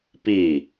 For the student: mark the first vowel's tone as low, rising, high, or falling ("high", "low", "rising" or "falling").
falling